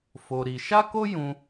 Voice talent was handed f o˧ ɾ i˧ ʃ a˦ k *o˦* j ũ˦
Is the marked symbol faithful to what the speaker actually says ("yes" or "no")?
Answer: yes